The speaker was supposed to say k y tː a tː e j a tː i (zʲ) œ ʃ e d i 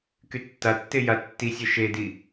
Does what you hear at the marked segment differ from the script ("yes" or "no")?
yes